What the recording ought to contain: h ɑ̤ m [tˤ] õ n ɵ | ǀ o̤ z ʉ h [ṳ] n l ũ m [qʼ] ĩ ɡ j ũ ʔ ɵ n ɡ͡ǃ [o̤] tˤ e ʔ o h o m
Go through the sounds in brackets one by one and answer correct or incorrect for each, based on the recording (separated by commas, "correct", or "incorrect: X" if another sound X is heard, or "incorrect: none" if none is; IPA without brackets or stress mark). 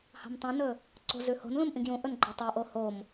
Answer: correct, incorrect: o̤, incorrect: ʔ, incorrect: o